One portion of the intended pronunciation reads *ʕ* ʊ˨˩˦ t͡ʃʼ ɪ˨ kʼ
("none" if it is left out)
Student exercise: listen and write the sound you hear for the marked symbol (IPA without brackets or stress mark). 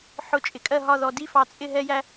ħ